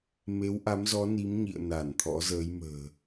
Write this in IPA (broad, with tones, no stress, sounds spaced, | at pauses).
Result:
m e˨˦ w ʔ a˨˦ m z ɔ˨˦ n i˨˦ m ɲ ḭ˧˨ ə̯ n a˧˩ n t̪ʰ ɔ̰˧˥ z əː˨˦ j m ə̤ː˨˩